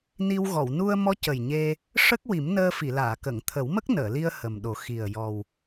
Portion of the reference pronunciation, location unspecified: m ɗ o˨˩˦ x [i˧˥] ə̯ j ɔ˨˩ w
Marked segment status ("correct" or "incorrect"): incorrect